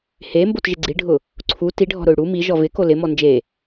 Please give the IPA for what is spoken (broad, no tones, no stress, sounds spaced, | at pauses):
h e m b o t ʒ ɪ ɡ͡ǀ i ɖʱ ʊ | ǀʰ u t i ɖʱ ɔ̤ ɾ ʊ y̯ ɽ u m i ʒ ɔ v ɪ k o l ɪ m ɔ n d͡ʒ e